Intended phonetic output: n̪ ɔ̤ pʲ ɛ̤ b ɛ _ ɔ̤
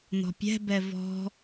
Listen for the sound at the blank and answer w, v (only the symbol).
v